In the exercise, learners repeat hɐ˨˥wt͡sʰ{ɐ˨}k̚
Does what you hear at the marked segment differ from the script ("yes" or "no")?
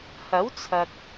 no